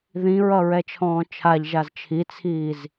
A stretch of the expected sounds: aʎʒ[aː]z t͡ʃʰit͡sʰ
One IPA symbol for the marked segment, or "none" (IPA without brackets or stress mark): a